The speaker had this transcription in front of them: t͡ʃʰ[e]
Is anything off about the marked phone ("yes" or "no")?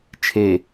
no